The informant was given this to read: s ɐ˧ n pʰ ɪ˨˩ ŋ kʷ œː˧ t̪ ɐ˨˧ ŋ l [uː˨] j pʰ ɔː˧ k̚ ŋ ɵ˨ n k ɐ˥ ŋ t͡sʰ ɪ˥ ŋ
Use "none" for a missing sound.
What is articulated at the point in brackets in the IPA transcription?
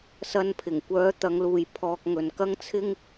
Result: uː˨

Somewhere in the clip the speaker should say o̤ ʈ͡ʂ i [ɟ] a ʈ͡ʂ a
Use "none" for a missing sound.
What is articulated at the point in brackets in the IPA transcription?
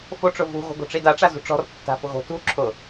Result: d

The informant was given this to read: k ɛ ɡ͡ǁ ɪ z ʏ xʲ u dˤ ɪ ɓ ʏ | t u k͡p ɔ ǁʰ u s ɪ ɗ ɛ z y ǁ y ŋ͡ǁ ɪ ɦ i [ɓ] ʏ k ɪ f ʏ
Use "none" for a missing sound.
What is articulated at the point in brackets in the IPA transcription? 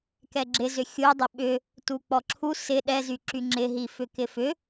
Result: f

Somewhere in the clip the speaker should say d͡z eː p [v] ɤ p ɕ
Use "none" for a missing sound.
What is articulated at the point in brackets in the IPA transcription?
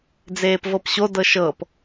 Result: v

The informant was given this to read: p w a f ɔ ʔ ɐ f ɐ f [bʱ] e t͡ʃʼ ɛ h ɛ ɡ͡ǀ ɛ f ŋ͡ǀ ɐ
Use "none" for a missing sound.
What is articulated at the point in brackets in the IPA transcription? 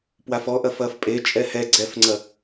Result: pʼ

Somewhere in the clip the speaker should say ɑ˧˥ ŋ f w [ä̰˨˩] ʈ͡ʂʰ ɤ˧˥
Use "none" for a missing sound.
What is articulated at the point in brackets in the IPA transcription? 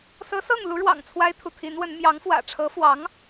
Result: ä̰˨˩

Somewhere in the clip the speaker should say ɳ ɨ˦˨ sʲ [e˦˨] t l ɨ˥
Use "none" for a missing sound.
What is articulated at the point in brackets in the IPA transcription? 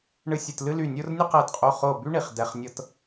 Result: ɨ˦˨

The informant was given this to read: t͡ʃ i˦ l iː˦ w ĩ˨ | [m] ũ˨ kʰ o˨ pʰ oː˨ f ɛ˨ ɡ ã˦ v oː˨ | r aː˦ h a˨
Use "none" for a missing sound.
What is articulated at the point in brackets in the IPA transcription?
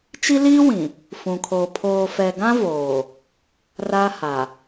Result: f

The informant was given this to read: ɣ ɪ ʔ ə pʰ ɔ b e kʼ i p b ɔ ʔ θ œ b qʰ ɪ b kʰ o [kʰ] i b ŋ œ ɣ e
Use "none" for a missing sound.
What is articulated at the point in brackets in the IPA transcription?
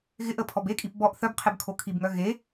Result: kʰ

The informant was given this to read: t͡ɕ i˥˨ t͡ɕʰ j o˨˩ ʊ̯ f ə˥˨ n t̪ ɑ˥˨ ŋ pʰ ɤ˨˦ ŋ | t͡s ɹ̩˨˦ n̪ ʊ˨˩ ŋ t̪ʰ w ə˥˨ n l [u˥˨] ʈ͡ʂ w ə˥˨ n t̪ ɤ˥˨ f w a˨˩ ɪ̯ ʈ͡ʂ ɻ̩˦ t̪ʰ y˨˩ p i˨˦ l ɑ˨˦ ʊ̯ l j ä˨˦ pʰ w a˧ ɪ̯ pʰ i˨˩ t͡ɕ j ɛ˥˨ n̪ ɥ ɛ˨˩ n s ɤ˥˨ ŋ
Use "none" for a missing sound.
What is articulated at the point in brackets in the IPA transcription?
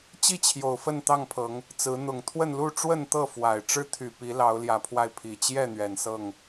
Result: u˥˨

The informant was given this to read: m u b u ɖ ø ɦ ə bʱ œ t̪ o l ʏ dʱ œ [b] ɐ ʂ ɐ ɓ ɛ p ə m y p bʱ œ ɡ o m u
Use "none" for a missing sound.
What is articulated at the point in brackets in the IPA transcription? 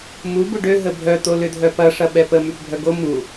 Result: p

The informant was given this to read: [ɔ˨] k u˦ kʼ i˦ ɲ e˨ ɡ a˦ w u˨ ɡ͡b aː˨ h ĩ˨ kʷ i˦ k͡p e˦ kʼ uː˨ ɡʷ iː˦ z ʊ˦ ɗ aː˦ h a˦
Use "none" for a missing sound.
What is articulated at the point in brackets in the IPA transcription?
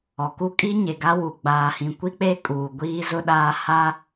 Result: ɔ˨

